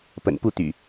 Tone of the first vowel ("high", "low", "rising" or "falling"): low